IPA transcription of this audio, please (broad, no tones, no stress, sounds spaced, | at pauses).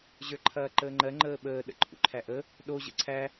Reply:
ʑ ə˞ ǃʰ ɐː ǃ əː ŋ͡ǃ ɜ ŋ͡ǃ əː ɓ əː ɗ ə̰ ǃʰ ṵ ǃʰ æ ʔ ə | ɗ o ʑ ə̰ ǀʰ æ